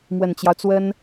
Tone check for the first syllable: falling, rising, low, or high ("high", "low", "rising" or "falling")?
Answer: low